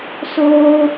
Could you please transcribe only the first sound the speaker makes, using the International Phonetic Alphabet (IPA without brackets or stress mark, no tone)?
s